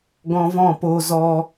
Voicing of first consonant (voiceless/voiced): voiced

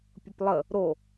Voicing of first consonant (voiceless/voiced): voiceless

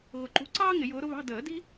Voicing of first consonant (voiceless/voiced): voiced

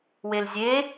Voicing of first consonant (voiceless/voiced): voiced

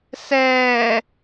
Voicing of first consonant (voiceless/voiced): voiceless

